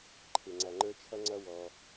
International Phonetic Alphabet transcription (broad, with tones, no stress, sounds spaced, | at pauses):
ǃʰ ɪ˩ ŋ͡ǀ æ˩ ŋ͡ǃ ə˞˦ t͡ʃʰ ʌ˥ ŋ͡ǀ ʌ˥ w ɔ˨